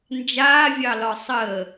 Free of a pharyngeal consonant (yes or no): yes